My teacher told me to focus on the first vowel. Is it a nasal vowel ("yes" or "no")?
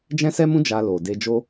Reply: yes